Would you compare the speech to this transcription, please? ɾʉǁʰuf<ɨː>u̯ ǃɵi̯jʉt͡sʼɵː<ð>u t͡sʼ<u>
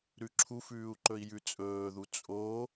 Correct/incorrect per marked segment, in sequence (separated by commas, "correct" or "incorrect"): incorrect, correct, incorrect